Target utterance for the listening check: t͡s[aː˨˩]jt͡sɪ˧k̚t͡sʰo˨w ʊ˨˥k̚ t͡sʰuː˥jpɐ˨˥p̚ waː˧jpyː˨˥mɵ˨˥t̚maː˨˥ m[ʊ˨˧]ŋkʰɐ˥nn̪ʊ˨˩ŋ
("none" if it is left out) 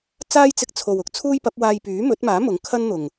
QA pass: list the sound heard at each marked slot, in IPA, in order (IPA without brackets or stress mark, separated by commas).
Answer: aː˥, ʊ˨˥